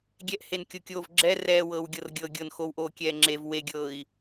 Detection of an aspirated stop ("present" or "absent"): absent